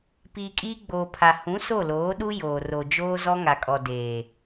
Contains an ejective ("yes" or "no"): yes